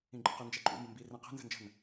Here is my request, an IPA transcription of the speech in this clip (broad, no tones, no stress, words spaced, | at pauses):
ĩɡ͡ǃə̤qə nd͡ʒɛǃʼṵmbə̃mbi rɛ̃qɛ̤ nzə̤nd͡ʒə̤n